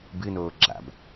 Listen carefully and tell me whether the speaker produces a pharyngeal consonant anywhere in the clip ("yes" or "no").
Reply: no